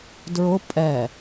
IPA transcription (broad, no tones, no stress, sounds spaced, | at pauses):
d ɹ ʊ pʼ ɛ